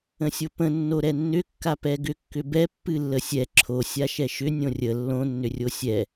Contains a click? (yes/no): yes